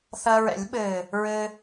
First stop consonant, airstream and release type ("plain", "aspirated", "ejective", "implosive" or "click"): implosive